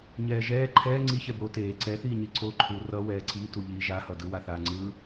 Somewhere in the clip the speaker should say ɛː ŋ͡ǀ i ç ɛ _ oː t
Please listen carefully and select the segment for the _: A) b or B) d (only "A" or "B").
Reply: A